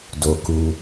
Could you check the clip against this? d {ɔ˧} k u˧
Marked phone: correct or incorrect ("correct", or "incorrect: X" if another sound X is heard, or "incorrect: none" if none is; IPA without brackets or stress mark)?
incorrect: o˧